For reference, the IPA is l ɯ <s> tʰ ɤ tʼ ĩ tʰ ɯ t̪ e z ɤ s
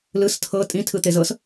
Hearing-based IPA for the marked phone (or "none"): s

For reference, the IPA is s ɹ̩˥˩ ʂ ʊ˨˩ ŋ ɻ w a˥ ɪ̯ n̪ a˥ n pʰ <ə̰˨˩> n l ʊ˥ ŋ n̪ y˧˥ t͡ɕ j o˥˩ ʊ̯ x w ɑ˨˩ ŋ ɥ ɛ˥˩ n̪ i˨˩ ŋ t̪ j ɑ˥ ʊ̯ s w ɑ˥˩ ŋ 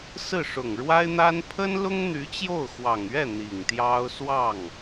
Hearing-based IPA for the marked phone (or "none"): ə˥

